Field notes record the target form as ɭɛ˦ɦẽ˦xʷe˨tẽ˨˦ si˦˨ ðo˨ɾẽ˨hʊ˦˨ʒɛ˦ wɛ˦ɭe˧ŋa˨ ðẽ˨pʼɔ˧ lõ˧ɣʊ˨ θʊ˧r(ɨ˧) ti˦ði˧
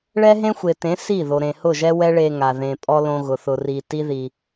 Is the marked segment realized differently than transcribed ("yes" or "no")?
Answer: yes